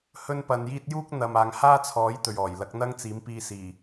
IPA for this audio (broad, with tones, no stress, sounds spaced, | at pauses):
h ɵ˥ n p ɐ˧ n j iː˥ t̚ j uː˥ k̚ n̪ ɐ˨ m aː˨ ŋ h aː˥ t͡sʰ ɔː˨˥ j t̪ ɵ˨ ɥ ɔː˨˩ j l ɐ˨˥ k̚ n̪ ɐ˥ ŋ t͡s iː˨˥ m p iː˧ s iː˨˩